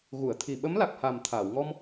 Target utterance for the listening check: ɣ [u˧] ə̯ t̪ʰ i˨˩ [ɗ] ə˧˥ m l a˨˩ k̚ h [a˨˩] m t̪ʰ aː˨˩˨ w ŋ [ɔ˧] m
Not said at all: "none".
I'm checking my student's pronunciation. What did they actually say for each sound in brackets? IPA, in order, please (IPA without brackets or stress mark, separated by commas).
u˨˩˨, ɓ, a˨˩, ɔ˧